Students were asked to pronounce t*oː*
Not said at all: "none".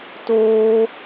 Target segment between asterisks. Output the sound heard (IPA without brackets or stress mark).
oː